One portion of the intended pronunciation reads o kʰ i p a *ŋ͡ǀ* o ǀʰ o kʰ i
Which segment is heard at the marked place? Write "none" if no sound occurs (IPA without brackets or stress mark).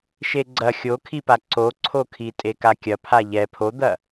ǀ